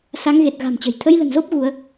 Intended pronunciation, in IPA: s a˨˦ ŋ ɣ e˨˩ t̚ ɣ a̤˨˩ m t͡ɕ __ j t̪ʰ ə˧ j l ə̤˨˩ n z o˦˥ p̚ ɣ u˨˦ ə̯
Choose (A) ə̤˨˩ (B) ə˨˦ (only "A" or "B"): A